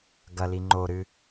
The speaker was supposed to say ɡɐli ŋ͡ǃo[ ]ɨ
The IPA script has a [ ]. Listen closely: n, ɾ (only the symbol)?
ɾ